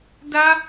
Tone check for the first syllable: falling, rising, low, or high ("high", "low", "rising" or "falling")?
high